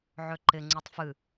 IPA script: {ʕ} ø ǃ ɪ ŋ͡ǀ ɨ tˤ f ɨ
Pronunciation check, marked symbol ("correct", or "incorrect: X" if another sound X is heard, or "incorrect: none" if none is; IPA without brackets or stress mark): correct